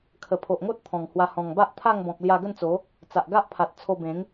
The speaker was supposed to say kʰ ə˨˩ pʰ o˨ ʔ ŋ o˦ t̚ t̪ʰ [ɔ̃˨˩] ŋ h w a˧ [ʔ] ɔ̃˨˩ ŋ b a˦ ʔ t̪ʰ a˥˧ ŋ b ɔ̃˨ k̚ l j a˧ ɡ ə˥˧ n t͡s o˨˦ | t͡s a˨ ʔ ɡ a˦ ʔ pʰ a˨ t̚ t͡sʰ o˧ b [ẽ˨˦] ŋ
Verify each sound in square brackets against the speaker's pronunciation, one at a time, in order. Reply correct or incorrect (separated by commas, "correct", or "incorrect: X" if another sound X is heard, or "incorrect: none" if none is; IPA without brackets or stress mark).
correct, incorrect: h, correct